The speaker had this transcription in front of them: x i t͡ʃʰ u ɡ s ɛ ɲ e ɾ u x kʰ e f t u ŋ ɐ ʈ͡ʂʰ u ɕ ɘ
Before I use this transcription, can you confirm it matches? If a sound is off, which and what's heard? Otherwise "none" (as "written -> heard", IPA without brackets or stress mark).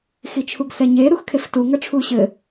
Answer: none